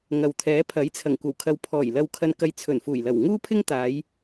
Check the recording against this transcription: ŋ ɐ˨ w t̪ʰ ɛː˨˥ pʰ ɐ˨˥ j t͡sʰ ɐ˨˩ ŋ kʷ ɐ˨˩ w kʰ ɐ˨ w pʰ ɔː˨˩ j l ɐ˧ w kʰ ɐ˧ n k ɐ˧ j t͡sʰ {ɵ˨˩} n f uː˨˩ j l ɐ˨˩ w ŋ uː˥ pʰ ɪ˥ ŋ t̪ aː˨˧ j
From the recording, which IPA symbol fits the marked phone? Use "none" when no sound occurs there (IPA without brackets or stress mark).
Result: ɵ˨˩